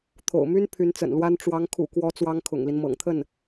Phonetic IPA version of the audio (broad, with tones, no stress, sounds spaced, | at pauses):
t̪ʰ o̰˨˩ ʊ̯ m y˥ n pʰ y˧˥ n t͡s ə̰˨˩ n l w a˥ n ʈ͡ʂ w ɑ˧˥ ŋ kʰ ṵ˨˩ k w ɔ˧˥ t͡s w ɑ˥ ŋ kʰ ʊ̰˨˩ ŋ l i˦ n m ɤ̰˨˩ ŋ t̪ʰ ə˥˩ n